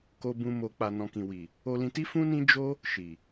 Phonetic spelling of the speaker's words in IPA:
ko˧bũ˧ mo˨k͡pa˨ nɔ̃˨kĩ˨wi˨ | o˧lĩ˧ti˦ fũ˦nĩ˦ d͡ʒo˦ | ʃi˨

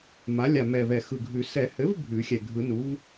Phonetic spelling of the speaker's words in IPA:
ma˩˥lʲa˨˩ mɛ˨˩vɛ˨˩ xɯ˨˩ɡʱʉ˨˩˦ sɛ˨˩˦hɘ˩˥v bʱʉ˨˩˦xʲɛ˨˩ ɡʱɯ˨˩˦nu˩˥v

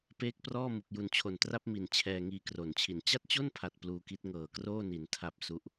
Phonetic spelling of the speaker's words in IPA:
peː˦˥k̚prɔː˥˩ mu˨˩k̚ju˨˩nt͡ɕʰo˨˩ntra˥˩p̚ mi˨˩n t͡ɕʰɛː˧ŋiː˧kro˨˩nt͡ɕʰi˨˩n t͡ɕa˥˩t̚t͡ɕo˥˩npʰa˨˩t̚ pluː˧ki˦˥t̚ ŋɤː˨˩kroː˥˩ni˩˦n tʰa˨˩p̚ su˦˥ʔ

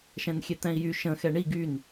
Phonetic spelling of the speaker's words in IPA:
ʃɛ̃nxʲɛt̪ɛ̃i̯jy ʃə̃ xɛɳi ɡyn

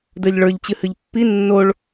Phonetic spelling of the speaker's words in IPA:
də˞ʎɭə˞ʎt͡ɕɨ hɨʎpːi nːoɭ

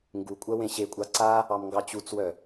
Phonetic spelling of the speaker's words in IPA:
ŋɡukʷʼɜ wẽɕekʷʼɑ ǀa | ɑmŋɡɑt͡ɕut͡swœ

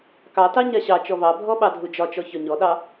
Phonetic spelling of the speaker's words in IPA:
kɑtɑ ɲaɕɑt͡ʃɔ βɑbʱɔ ɓɑdʱud͡ʒɒt͡ʃɔ çɒɲɔɗɑ

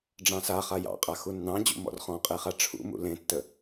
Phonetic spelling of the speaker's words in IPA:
ɖ͡ʐɑ̃saχa jɑ̰qʼa xunːɑ̃d͡ʑṵ mɔ̰rχɔ̃qʼeχa ʈ͡ʂʰṵmṵ lẽtːə

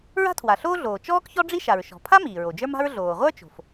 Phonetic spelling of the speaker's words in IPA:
ɹa̤˥tʰwa˩ɬoː˥ɮoː˩ t͡ʃɔː˥kçɔ˥ɖ͡ʐi˥ ʃa˩ɹʃɔ̤˩pʰa˥ miː˩ɹo˩d͡ʒə˞˥ma̤˥ɹ ɮoː˩ʁʷə˞˥t͡ʃo̤˩f

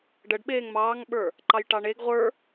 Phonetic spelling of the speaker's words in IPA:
ɖəɖ ɓeːŋmɑːŋɓə˞ | ǃɑjʈɑɳeɡ ʁʷə˞

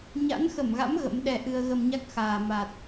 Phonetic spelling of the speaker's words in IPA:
ɲa̰˧˥nxə˧˩mɣa̰˧˥m ɣə̰˧˥m ɗɛ˧ʔɨ˧ə̯ ɣə˧mɲa˦˥k̚ xaː˨˩ ma˨˩t̚

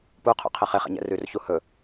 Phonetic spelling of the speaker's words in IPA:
puqʰṵqʰɛ χeχɛ̰ɲɛ̰ rʉrçu hɵ

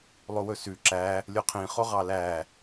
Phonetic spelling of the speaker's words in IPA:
lˠowɵsʉ ǁæ | lʲoqʰĩχo ʁɑlæ

